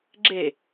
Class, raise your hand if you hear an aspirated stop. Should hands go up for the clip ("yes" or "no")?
no